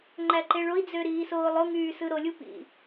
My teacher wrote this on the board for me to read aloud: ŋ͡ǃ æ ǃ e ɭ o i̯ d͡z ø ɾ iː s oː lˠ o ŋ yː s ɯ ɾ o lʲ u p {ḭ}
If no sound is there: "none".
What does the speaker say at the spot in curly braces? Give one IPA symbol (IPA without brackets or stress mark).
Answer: ḭ